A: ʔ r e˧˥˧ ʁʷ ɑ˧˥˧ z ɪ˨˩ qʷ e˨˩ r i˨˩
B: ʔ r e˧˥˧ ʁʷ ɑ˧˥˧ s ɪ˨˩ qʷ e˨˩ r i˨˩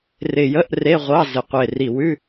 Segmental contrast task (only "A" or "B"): A